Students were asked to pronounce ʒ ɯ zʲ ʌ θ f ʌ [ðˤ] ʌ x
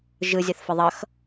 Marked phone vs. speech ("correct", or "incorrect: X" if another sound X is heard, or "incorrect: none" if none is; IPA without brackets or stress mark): correct